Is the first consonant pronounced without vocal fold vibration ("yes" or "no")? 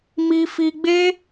no